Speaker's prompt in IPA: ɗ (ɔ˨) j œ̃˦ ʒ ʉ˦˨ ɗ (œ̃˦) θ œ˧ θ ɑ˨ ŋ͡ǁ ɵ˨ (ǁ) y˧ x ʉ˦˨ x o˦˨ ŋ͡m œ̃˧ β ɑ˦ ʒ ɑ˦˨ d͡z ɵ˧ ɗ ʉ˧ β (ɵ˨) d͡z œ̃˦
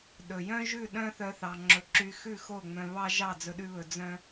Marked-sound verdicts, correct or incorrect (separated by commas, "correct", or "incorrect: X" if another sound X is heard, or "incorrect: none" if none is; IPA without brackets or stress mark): incorrect: ɵ˨, correct, correct, correct